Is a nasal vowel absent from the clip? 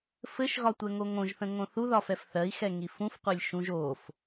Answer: no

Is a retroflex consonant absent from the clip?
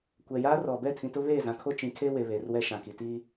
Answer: yes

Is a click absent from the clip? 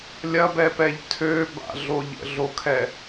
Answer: yes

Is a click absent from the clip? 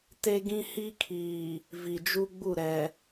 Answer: yes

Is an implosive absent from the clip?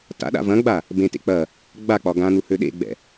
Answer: no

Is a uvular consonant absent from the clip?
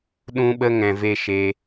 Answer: yes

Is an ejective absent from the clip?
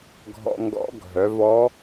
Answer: yes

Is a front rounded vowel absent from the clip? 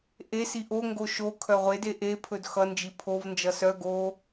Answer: no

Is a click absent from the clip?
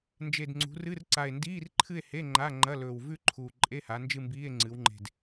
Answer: no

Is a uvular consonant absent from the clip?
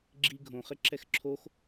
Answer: no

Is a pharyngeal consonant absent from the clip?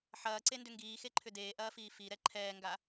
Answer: no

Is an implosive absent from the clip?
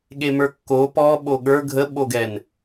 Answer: no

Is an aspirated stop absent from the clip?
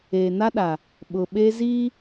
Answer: yes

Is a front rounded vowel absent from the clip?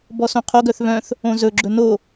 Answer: no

